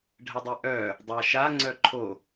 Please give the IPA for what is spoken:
ɖʱ ə dˤ e ʔ œ | dˤ a ʃ a ŋ͡ǀ œ ǃʰ o

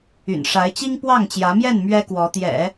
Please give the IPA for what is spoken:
y̰˨˩ n ʂ a˧˥ ɪ̯ t͡ɕ i˥ ŋ p w ɑ˥˩ ŋ t͡ɕ j ä˧˥ m j ɛ˥˩ n m ɥ ɛ˥ k w ɔ˧˥ t̪ j ɛ̰˨˩˦

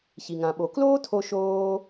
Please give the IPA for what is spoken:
ç i˩ ŋ ã˩ ɓ o˩ k l oː˥ tʰ o˧ ʃ oː˧

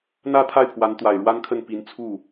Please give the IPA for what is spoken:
n̪ ä˥˧ t̪ʰ a˥˩ ɪ̯ pʰ w a˧˥ n t̪ w a˨˩ ɪ̯ ɻ w a˥ n kʰ ə˥˩ n p i˧˥ n t͡sʰ u˥˩

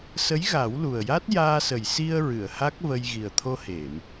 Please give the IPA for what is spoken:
s ə˧˥ j ɣ a˨˩˦ w l u˨˩ ə̯ j a˦˥ t̚ j aː˧ s ə˨˩ j s i˧ ə̯ ɹ ɨ˨˩˨ ə̯ h a˦˥ k̚ v ə˧ j ɣ i˨˩ ə̯ t̪ʰ o˧ h e˨˩˨ m

